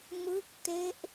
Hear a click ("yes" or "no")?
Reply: no